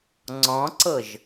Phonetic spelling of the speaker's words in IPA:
ŋ͡ǀ ɔ̃ ǀ ɤ ʒ

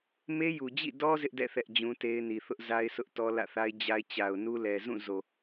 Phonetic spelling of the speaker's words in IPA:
m e˦ j u˨ d͡ʑ ḭ˦˨ d ɔ˦ z ɪ˦ ʔ d ɛ̰˦˨ θ ɛ˦ ʔ d͡ʑ ũ˦ t e˦ ɪ̯ n i˨ θ ʊ˦ ʔ z a˦ ɪ̯ sʰ ʊ˦ ʔ t ɔ˦ l ä̰˦˨ θ a˦ ɪ̯ d͡ʑ a˦ ɪ̯ t͡ɕ a˨ ʊ̯ n u˦ l ɛ˨ z ũ˦˨ z o˨

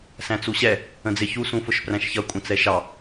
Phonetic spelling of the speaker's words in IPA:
s æ̃ t͡s u ɕ ɛ | ə̃ d͡z ɪ ç u s ũ f ʊ ʃ p r æ̃ ʃ ç ʌ kʷʼ ə̃ t͡s ɛ ʃ ɑ

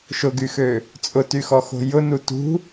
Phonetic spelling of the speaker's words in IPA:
ʃ ʊ ɡ y x ø | t͡sʼ ʊ t y x ɔ x o̤ j ʊ n u t ṳ

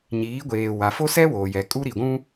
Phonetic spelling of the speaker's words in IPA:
ɲ iː˨˦ ɡʷ eː˨ w a˨ f o˦ s ɛ˦ w oː˨ j ɛ˨ kʼ u˦ ɾ i˨ ɡʷ ũ˦

